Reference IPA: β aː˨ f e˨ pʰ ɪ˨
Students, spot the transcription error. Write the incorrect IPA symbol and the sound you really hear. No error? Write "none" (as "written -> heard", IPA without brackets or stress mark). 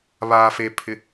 none